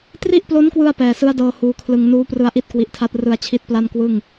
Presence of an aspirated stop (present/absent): present